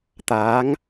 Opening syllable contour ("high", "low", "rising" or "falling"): rising